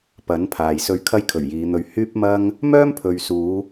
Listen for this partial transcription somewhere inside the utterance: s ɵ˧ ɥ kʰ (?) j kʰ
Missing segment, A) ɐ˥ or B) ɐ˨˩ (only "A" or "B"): A